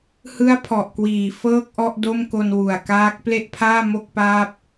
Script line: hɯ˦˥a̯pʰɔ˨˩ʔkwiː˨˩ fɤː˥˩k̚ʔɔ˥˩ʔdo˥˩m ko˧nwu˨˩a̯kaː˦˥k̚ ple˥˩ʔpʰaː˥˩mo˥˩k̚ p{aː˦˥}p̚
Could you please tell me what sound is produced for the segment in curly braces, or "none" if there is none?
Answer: aː˥˩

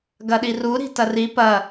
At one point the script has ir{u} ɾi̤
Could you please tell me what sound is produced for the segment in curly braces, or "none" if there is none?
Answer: u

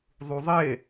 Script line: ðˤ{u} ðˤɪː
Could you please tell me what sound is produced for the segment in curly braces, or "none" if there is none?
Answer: u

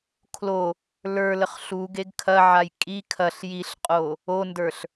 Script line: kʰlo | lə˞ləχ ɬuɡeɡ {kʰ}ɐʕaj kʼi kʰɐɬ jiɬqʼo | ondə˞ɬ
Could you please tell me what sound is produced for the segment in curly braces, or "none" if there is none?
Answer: kʰ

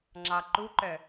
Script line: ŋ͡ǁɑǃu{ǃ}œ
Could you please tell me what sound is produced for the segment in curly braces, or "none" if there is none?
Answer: ǃ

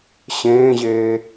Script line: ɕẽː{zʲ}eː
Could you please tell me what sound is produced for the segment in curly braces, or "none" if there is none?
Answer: ʑ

